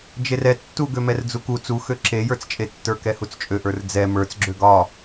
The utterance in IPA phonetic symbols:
d͡ʒ e r ɛ tː u ɡ ø m ɛ r d͡z u k u t͡s u x ø ǁ e j ə˞ t͡s t͡ʃʼ e tː ə˞ k ɛ h u t͡s t͡ʃʼ ø ʔ ə˞ r d͡z ɛ m ə˞ t͡s ɡ͡ǁ ø ɡ ɒ

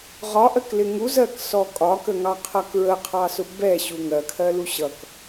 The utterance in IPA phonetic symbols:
ʁ ɒ ʔ ɜ k l ɪ ŋ u z ɜ k s ɔ kʼ ɒ k ə ŋ ɑ qʰ ʌ k ɹ ə qʰ ɑ s ʊ b ɛ ɕ u ŋ ɜ kʰ ɜ l u ɕ ʌ k

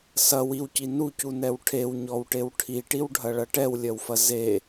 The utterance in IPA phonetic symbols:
s ɐ w i w c i n u c u n ɛ w ʈʰ e w ɲ ɔ w ʈ e w ʈʰ i ʈ i w ɖʱ ɐ ɭ ɐ ʈ ɛ w lʲ ɐ w f ɐ z e

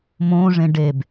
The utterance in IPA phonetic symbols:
m õː ʐ ẽ ɖ e b

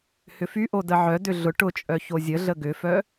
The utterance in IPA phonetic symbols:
h ʏ f y ʔ o d ə ʕ œ d ʏ ɮ ʊ ʈ ʊ t͡ʃʼ œ ç o zʲ ə ɮ ə ɡ ʏ f œ

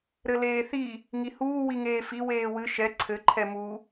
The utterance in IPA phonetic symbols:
ɾ ɘ l eː θ i | ŋ i h uː w i ŋ eː f i w eː w ɨ ʃ ɛ ǀʰ ɘ ǃʰ ɛ m u

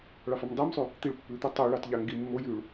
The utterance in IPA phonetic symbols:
ɭ ɑ f ɑ m dˤ i m sˤ y | t̪ i ɭ pː ʉ t̪ e tˤ y ɭ ɑ t ʎ ɑ ŋ ɡ i mː o j ʉ ɭ

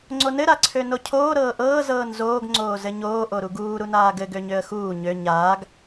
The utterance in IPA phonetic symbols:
ŋ͡ǀ o n ɘ ɾ a ǀʰ ø n o cʰ oː ɾ ɤː ʔ ɤː z ɤː n z oː ɡ ŋ͡ǀ oː z ɘ ɲ oː ʔ o ɾ u ɡ uː ɾ u n aː ɡ ɘ ɡ ø ɲ ø ə̯ x uː ɲ ø ɲ aː ɡ

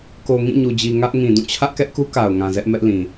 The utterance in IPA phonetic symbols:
k o˨ ŋ ĩ˦˨ ɲ u˨ d͡ʑ i˨ ŋ ä˦ ʔ ŋ ĩ˨ d ũ˦˨ t͡ɕʰ ä˦ ʔ k ɛ˦ ʔ k u˦ k a˨ ʊ̯ ŋ ã˨ z ɛ˦ ʔ m ɛ˦ ʔ l ĩ˨

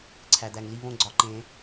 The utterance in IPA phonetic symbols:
ǀʰ æ˩ d̪ æ˩ ŋ l i˦˨ β õ˦˨ ɡ͡ǀ ɒ˩˧˩ ǃ ẽ˨˩˦

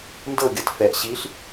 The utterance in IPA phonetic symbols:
n d ɤ ɡʲ ɤ t f ɛ ʔ ɕ i ɬ

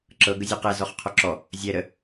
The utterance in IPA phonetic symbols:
ǁ ɤ ɡ ə zʲ ɔ q ɛ z ɔ χ qʰ ɔ ǁ ɔ | zʲ ɛ ɾ ə

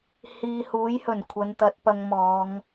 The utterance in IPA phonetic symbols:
h iː˨ h uː˨˥ j h ɵ˨˩ n kʷʰ ɐ˨˧ n t̪ ɐ˧ t̚ p ɐ˧ ŋ m ɔː˨˧ ŋ

